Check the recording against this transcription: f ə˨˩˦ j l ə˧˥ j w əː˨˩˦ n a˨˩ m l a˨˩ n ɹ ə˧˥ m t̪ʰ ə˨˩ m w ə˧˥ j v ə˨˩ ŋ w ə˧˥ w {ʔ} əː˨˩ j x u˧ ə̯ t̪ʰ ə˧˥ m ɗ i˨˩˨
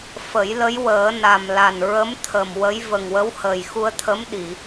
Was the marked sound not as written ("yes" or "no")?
yes